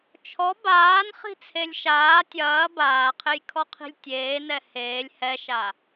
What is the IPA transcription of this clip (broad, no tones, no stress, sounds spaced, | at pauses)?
t͡ʃʰ ɔ b aː n χ i̤ t͡sʰ e lʲ ʃ aː tʲ ɐː b aː qʰ e j kʰ ɔ qʰ i̤ lʲ tʲ eː n ɛ h eː lʲ h ɛ ʃ a